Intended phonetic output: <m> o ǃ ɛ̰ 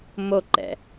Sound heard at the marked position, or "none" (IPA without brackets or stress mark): m